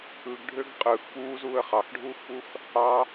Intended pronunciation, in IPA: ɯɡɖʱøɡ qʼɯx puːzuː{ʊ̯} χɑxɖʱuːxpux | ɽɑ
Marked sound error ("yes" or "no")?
yes